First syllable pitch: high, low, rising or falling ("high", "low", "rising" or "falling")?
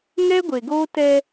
high